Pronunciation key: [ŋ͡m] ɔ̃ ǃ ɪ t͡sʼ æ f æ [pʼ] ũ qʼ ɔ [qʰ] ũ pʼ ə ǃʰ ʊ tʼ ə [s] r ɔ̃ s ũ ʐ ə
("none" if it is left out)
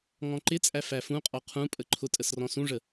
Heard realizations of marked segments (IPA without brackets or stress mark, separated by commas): ŋ, f, qʰ, s